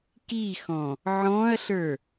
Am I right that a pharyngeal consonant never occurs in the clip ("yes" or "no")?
no